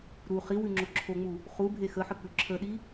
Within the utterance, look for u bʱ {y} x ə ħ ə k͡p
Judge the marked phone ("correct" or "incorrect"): incorrect